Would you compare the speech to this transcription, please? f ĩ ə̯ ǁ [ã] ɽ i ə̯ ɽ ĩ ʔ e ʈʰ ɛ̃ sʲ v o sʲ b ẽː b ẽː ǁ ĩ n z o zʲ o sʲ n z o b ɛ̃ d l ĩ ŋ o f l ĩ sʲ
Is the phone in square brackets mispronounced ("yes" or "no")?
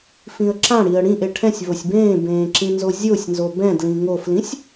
no